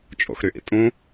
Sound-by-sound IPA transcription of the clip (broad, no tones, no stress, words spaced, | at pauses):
t͡ʃʼo̰xɾyʔḭtʼũ